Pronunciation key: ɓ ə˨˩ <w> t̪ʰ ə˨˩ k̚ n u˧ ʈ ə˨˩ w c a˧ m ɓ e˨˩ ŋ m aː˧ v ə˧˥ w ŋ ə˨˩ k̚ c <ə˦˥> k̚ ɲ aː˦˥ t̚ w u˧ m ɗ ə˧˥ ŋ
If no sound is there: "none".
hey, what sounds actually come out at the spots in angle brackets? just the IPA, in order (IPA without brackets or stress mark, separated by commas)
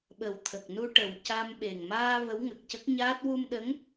w, ə˦˥